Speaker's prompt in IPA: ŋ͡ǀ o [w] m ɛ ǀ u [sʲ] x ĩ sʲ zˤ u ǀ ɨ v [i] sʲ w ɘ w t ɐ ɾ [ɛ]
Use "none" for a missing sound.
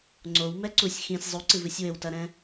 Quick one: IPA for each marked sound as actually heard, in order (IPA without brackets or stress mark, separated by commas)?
w, sʲ, ɨ, ɛ̃